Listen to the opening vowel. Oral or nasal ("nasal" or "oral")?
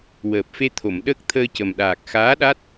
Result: oral